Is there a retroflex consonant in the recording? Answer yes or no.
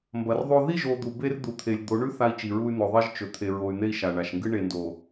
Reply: yes